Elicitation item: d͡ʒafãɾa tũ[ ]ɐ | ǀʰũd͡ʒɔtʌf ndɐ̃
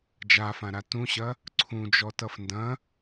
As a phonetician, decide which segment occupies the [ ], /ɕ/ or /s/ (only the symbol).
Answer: ɕ